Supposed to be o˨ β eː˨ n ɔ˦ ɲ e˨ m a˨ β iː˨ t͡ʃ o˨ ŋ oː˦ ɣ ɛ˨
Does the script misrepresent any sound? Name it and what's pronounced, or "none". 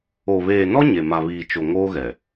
none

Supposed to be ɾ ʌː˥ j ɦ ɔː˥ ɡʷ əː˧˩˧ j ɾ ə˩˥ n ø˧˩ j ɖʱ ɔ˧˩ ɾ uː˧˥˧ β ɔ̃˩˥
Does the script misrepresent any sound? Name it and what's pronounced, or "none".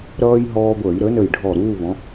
ø˧˩ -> ə˧˩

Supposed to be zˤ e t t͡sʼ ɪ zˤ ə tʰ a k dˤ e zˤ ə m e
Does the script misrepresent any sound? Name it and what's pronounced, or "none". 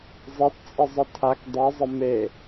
none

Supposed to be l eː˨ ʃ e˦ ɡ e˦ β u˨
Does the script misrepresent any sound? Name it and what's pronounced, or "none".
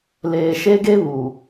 none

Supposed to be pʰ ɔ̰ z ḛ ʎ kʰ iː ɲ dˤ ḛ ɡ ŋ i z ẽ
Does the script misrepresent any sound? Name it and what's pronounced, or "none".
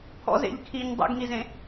none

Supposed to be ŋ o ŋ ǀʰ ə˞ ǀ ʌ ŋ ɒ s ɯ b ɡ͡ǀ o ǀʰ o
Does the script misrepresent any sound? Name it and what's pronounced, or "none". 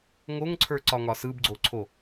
ʌ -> ɒ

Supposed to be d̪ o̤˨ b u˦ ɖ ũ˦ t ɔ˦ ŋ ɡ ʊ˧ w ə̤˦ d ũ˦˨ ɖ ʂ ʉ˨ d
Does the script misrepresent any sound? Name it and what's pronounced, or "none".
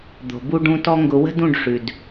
none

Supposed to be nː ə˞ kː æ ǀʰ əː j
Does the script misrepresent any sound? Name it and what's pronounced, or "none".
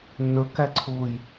əː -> ʊː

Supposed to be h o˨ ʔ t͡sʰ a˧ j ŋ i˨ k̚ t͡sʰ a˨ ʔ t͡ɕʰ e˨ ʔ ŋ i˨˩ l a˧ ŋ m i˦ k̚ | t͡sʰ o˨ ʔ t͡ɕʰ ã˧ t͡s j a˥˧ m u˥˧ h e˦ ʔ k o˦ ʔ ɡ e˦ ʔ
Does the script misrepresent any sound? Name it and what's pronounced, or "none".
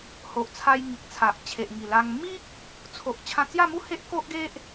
none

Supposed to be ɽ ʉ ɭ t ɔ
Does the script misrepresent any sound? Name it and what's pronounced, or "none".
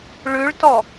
ɽ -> ɭ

